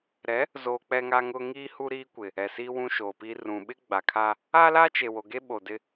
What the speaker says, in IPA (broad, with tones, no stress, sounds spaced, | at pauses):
ɾ ɛ˨˦ | z oː˨ k͡p ɛ˦ ŋ a˦ ŋ ʊ˦ ŋ iː˦ h u˦ ɾ iː˦ kʷ ɪ˨ | ɛ˨ s iː˦ w ũ˦ ʃ oː˨ p iː˦ r ũ˨ ɓ ɪ˦ ɡ͡b a˨ kʰ aː˦ | a˦ l a˦ t͡ʃ e˨ w o˨ ɡ e˦ ɓ o˨ d ɪ˦